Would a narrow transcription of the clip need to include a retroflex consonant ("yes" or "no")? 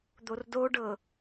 yes